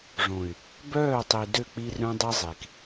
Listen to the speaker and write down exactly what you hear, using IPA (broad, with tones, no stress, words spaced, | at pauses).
ʐõ˨y̯ | bœː˦˨tˤi˨ dø˦˨k͡pi˦ rœ̃˦dˤi˦zˤi˨k